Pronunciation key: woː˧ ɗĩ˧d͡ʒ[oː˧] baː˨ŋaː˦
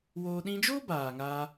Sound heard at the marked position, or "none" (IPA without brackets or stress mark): oː˦